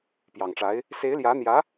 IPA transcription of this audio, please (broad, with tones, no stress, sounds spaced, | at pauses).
p j ɑ˨˩ ŋ ʈ͡ʂ a˧˥ ɪ̯ | s e˧˥ ɪ̯ l j ä˧˥ n̪ j ä˧˥